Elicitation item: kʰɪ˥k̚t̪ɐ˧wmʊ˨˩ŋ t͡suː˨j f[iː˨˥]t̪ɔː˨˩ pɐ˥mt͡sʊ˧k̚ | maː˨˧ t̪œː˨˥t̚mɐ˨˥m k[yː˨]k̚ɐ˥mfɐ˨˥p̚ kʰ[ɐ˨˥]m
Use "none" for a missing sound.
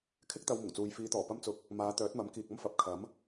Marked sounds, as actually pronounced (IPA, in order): iː˨˧, iː˨, ɐ˨˥

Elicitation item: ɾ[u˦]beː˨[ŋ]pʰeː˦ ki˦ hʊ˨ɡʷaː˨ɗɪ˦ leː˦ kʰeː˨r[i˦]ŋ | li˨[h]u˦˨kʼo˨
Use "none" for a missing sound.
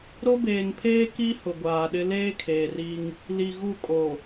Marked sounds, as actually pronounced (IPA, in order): o˦, ŋ, i˦, ɣ

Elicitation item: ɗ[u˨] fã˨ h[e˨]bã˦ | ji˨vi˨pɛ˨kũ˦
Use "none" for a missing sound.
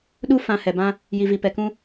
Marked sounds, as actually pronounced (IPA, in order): u˦, ɛ˨

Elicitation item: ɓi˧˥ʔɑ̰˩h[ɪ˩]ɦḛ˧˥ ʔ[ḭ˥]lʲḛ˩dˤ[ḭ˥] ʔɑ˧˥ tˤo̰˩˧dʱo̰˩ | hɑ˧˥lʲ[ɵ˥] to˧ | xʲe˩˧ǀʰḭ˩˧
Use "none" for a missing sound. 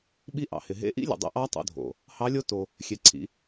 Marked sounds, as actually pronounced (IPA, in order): ɪ˩, ḭ˧˥, ḭ˧, o˥

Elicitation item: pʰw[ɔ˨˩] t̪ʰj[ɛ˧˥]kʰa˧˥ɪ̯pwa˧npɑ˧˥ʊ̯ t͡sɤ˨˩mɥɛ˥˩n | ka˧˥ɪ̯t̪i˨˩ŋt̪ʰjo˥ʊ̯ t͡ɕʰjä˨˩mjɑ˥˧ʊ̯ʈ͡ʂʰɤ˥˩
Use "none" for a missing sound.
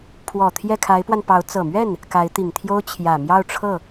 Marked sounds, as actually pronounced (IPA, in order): ɔ˨˩, ɛ˥˩

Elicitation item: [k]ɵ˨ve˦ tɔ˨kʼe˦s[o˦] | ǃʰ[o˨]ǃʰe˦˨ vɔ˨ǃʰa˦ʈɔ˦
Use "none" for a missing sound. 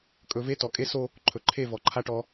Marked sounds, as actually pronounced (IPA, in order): kʼ, o˦, ɵ˨

